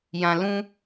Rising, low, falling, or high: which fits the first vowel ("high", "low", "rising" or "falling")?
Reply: low